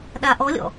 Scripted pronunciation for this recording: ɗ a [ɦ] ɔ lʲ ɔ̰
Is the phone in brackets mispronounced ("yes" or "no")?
yes